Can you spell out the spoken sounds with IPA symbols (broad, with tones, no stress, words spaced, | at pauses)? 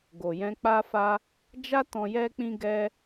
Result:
ɡo˨jɛ̃˧k͡pa˦fa˦ | d͡ʒa˦ tɔ̃˧jɛ˦k͡pĩ˦ ɡɛ˧